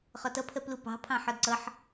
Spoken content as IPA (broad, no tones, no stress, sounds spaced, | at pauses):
χ ɒ t ʌ pʰ ɜ p l u p ɑ̤ pʰ ɑ̃ ħ ɒ d ǀ ʌ ħ